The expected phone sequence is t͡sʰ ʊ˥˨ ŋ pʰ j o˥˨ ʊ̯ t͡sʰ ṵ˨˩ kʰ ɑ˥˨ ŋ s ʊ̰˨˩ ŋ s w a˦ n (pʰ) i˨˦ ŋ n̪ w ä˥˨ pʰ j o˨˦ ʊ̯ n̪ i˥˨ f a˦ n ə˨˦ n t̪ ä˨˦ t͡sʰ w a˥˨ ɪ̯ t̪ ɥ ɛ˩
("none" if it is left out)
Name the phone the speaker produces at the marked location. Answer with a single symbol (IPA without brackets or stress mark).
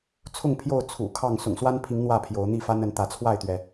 pʰ